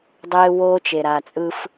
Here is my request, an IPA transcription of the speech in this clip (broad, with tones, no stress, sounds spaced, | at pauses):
dˤ eː˦ w oː˦ t͡ʃ e˨ ɾ a˨ t͡sʼ ɯː˦ f